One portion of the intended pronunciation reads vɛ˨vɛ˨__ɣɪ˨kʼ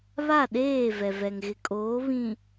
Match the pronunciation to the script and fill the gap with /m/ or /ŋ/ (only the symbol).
ŋ